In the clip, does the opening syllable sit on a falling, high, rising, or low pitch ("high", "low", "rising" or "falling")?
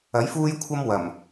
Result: rising